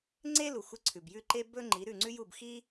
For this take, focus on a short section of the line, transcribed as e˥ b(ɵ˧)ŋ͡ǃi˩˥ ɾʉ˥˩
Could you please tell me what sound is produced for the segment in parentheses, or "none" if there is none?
ɵ˥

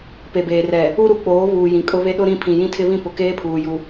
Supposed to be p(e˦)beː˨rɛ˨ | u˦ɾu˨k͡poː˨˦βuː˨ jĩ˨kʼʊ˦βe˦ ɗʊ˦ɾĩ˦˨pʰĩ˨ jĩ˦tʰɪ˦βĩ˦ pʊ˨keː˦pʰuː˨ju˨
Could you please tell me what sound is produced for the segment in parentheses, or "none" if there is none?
e˨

